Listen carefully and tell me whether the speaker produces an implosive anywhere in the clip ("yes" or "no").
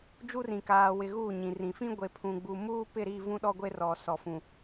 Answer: yes